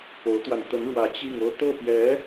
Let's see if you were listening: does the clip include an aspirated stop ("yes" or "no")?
no